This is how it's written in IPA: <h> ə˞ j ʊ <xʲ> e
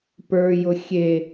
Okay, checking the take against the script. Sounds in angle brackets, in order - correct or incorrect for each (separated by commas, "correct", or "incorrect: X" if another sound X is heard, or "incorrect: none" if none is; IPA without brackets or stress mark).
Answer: incorrect: p, correct